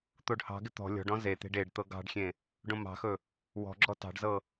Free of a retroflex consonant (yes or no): no